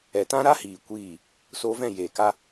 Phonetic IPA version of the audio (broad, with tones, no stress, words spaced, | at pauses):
ɛ˨ tã˦ɾa˦hiː˨ kʷiː˦˨ | soː˧vɛ̃˦˨ jeː˨ka˦